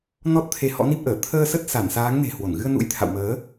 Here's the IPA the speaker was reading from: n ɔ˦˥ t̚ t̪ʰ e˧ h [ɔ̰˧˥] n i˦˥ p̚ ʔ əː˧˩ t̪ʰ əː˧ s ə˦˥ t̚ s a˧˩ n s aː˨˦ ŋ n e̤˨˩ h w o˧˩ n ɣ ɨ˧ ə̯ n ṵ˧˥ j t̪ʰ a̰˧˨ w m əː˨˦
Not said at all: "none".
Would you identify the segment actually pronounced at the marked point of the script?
ɔ̰˧˥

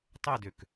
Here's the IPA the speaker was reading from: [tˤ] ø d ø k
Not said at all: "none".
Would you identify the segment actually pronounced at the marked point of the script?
tˤ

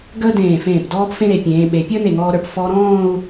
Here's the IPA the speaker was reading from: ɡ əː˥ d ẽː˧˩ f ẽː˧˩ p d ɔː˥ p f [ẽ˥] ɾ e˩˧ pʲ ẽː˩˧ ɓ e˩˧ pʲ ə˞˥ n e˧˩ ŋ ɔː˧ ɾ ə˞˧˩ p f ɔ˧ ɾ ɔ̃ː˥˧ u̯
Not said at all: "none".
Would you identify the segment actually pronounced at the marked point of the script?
ẽ˥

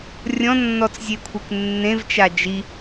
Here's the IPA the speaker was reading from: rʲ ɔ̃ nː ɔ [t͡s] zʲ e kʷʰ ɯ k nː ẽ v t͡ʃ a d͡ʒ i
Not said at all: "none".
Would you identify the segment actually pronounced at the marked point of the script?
t͡s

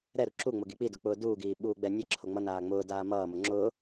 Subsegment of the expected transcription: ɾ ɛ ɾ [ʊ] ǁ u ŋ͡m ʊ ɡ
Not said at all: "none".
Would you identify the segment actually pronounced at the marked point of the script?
u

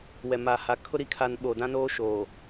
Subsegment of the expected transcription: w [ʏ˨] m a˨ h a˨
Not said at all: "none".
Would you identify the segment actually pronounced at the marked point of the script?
ɛ˨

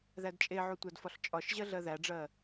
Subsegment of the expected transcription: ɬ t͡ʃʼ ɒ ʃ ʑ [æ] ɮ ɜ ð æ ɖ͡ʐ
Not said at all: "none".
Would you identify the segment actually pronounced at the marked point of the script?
ɜ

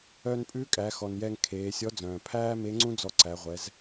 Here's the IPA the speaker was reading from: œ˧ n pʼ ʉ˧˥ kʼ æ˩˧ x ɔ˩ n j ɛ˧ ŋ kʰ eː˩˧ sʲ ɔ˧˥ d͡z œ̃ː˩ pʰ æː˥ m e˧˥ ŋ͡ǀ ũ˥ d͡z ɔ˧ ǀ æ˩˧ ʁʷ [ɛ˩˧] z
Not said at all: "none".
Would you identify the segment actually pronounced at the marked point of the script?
ɛ˩˧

